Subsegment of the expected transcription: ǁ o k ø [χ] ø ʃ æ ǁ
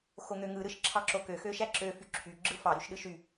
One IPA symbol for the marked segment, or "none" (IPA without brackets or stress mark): x